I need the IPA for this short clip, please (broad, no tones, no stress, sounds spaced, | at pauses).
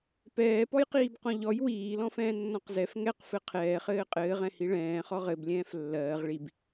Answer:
p ɛː p ɔ j q iː b q ɔ̃ ʎ ɔ j w iː l ɔ̃ f ɛ̃ː nː ɔ̃ q z ɛ f ŋ ɛ q f ɘ qʰ ɛː χ ɘː qʼ ɘː ʁ ɛ̃ h i ɭ ɛ̃ː χ ɔ ʁ ɘ b lʲ ɛ̃ː f lː ɜː ʁ ɭ i b